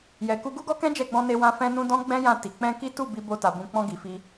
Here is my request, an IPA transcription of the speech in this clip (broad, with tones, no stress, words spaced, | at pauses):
jɛ˨ku˧ ɡu˦ɡɔ˦kɛ̃˦ d͡ʒɛ˦˨ɡ͡bɔ̃˧ne˧wã˧ fɛ̃˦nũ˦ dɔ̃˦ ɡ͡bɛ̃˦ jã˦˨ti˨ k͡pɛ̃˧ki˦ tu˦˨ bi˧bo˧ta˨ bũ˧ k͡pɔ̃˧ɡi˨fi˧